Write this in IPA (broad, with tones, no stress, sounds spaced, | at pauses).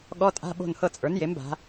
ɠ ɔ˧˥˧ tʼ a̤˧˥˧ ɓ o̤˦˨ n h ɤ˦˨ t͡sʼ ə˞˩˥ n j e˩˥ m b a̤˩˧